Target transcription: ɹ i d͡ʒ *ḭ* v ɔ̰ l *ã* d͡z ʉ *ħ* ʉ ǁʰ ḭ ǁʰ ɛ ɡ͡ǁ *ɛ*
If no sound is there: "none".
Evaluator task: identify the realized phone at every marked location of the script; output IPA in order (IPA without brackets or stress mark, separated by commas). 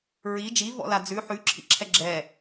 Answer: i, a, ħ, ɛ